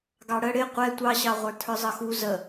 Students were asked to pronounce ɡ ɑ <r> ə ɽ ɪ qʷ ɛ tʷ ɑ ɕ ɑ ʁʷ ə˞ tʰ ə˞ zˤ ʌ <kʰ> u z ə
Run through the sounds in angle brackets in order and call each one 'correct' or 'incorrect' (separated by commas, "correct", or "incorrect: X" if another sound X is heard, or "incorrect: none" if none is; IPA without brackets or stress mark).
incorrect: ɽ, incorrect: x